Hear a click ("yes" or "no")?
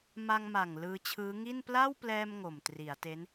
no